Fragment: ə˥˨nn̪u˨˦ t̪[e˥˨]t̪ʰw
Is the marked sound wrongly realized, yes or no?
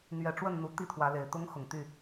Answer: yes